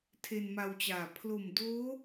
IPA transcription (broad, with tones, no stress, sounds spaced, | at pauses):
tʰ e˧ n m a˧ w t͡ɕ aː˨˩ pʰ l o˨˩ m d oː˦˥